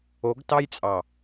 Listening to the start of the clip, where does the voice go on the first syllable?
rising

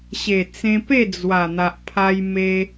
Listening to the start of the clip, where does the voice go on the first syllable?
low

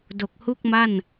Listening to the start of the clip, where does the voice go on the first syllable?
low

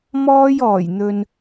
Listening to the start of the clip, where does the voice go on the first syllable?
high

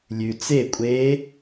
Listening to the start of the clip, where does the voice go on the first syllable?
low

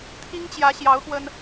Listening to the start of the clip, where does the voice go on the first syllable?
high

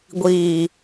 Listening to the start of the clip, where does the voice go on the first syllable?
low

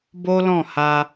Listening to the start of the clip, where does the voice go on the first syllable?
high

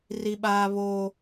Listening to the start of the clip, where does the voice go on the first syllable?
high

